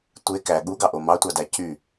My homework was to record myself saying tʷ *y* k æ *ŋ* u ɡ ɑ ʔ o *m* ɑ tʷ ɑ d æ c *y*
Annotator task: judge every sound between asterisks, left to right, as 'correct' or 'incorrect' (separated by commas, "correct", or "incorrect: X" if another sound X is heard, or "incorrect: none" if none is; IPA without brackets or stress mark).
incorrect: e, incorrect: ɠ, correct, correct